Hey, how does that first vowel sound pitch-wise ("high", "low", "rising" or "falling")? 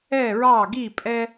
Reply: falling